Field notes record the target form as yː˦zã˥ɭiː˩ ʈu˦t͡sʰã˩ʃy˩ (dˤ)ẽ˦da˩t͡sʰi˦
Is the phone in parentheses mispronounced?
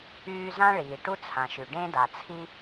yes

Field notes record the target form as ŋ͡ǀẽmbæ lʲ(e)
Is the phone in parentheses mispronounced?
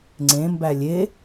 no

